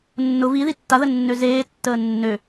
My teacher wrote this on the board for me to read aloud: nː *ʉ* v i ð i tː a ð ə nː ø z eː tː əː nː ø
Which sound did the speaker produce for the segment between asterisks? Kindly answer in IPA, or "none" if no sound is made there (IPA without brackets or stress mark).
ʊ